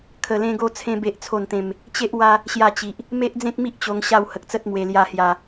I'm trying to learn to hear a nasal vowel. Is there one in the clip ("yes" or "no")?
yes